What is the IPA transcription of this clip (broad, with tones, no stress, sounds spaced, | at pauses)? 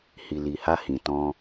h i˨ l i˨ h a˧ h ĩ˨ t ɔ̃˧